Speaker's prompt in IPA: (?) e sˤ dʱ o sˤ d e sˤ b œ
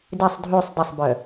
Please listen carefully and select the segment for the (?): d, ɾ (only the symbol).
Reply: d